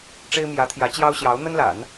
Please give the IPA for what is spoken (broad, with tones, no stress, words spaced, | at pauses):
ʈ͡ʂe˥ɪ̯mjä˧˥t̪ʰjä˧˥ t͡ɕjɑ˥ʊ̯ɕjɑ˧˥ʊ̯ n̪ə˥nla̰˨˩˦n